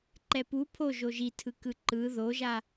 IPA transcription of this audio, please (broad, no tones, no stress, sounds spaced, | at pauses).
ǃ ɛ p u pʰ o ʒ o ʒ i tʰ ɯ k ɯ ǃ ɯ ð o ʒ a